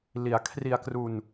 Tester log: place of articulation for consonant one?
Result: alveolar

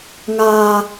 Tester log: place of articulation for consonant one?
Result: velar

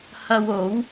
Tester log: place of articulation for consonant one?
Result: glottal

